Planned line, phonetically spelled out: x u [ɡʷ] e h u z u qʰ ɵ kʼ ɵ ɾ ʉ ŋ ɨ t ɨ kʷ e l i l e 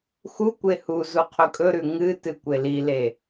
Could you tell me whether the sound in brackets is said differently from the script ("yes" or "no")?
yes